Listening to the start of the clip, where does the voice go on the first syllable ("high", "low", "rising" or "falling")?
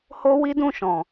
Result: high